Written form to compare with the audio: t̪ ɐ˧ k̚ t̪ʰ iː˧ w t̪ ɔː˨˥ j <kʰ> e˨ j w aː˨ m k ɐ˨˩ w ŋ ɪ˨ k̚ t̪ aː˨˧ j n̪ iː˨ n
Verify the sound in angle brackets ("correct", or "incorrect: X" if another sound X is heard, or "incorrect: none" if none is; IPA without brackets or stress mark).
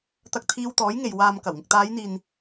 incorrect: ŋ